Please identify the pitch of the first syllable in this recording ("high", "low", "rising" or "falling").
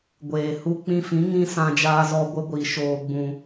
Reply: low